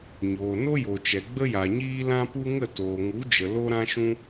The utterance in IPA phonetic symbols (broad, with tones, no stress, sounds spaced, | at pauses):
ɲ oː˨ n o˦ j o˨ t͡ʃ ɛ˨ ɡ͡b ə˦ j a˨ ɲ iː˦ l ã˦ p u˦ ŋ ə˦˨ t oː˨ ŋ u˨˦ d͡ʒ ə˨ l o˦ ɾ ã˦ ʃ ũ˦